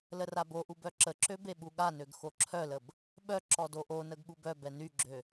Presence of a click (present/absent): present